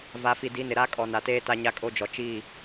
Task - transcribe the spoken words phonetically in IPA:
v a˨ f i˨ d i˨˦ n ɪ˨ ɾ a˦ kʼ ɔ˨ n a˨ t eː˦ t a˦ ɲ a˦ kʼ o˦ d͡ʒ ɔ˨ t͡ʃ i˦˨

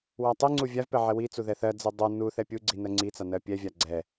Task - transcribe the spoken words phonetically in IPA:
w a tˤ i ŋ͡ǀ u vʲ a v p ɛ ʕ ɛ w i t͡s u ð ɛ θ ɜ d͡z i dˤ u n u θ ɛ pʲ u ɡ͡ǀ i n ɜ ŋ͡ǀ i t͡s a n ɜ pʲ ɛ vʲ a ɡ͡ǀ ɛ

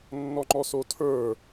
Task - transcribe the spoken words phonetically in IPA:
nː ɔ ŋ͡ǃ ɔ s o tʰ ə˞

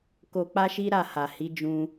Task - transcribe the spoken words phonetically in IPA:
k o˧ k͡p a˦ ʃ i˦ ɾ a˦˨ h a˨ h i˨˦ d͡ʒ ũ˧

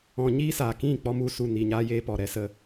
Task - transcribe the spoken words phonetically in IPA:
ɔ̃˧ ɲ iː˦ s aː˨ k ĩ˦˨ k͡p ɔ˧ m u˧ s u˨ n i˨ ɲ aː˧ j eː˧ p ɔ˨ ɾ ɛ˦ s ə˧

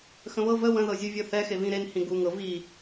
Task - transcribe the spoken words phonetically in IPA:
x ə̃ β ɤ v ə w ə̃ ð ɤ zʲ u vʲ ɤ θ ɛ x e v ĩ ɾ e n h ĩ ɡ u ŋ ɤ v i

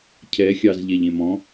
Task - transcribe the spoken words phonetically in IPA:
cʰ ɛ xʲ ɑ z ʎ ɛ ʎ ẽ m ɔ̃

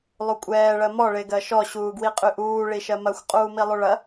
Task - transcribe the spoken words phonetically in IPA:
lˠ u kʷʼ ɛː ɭ ɜ m ɔ ɭ e ɡ ɜ ʃ ɔ ɕ uː ɡ w i qʼ y ʔ uː ɭ i ʃ ɜ m ɐ xʷ qʼ uː m i lˠ u ɭ ɐ

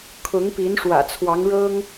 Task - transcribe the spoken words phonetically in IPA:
kʰ ʊ˧˥ ŋ p i˧˥ n ʂ w ä̰˨˩ t͡sʰ w ɑ˧˥ ŋ ɻ ɤ˥ ŋ

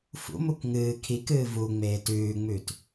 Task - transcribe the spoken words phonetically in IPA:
f ṵ m u k ŋ ɨː kʰ i k ɨː v u ŋ͡m eː t ʉː ŋ͡m ʉ t

